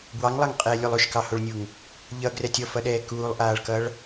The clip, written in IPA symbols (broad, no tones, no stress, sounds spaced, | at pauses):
b w ɑ ŋ lˠ ɑ ŋ qʼ ɛː lʲ o lˠ o ʃ k ɑ h o ɭ nʲ u ŋ | ʎ ʌ ɡ r ɛ tʲ ɔ f ʌ ɗ ɛː k uː lˠ ʔ aː ɭ k ʌ ɭ